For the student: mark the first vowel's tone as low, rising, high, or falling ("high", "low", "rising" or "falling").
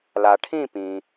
low